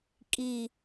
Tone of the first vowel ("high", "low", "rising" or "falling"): low